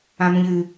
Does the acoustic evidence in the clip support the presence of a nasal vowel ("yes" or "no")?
yes